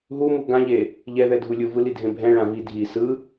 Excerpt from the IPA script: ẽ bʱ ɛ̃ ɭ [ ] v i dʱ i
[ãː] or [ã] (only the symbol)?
ã